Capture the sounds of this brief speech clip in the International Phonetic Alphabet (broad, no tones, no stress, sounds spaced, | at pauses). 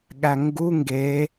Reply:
ɠ æ ŋ ɡ u ŋ ɡ e